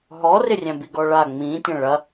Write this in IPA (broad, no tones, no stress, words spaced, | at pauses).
ɦɔrɪ rʲæ̃biɡɔɭa ŋ͡mĩ tʲɐ̃ɭɐ